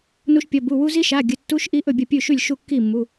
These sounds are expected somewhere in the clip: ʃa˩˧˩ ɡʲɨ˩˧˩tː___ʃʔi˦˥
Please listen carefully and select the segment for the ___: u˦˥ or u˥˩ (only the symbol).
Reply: u˦˥